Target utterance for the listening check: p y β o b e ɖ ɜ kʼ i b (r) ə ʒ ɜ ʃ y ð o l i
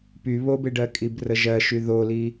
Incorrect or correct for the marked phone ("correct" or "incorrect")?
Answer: correct